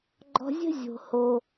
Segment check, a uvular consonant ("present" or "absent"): absent